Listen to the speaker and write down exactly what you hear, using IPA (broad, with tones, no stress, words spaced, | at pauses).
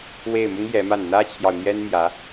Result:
we˥˩ɪ̯mʊ˥ŋ jɛ˧˥ma˥˩n n̪ä˥t͡ɕʰjɑ˨ʊ̯ n̪jɛ˥nmjä˧˥